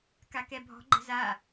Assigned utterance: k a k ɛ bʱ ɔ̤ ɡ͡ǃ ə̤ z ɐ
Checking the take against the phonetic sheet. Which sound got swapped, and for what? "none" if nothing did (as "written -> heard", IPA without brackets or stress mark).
ɐ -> a